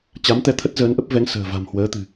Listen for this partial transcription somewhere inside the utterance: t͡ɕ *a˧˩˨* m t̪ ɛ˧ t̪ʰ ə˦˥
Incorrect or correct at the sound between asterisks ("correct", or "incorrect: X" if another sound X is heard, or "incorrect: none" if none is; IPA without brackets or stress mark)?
incorrect: a˨˦